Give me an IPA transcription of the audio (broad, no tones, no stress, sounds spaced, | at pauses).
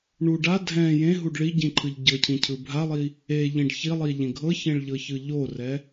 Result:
ɳ u ɖ a dʱ ɛ̃ j ẽ ɦ u ɖ ɭ i ɟ ĩ ǃʰ ɯ ʎ ɟ ɤ cʰ ĩ cʰ ɯ bʱ a lˠ i | e ʎ ĩ ɖ ç i lˠ i ʎ ẽ ɡʱ ɤ ç ẽ ɭ ʎ ɤ ç ɯ ʎ o r ɛ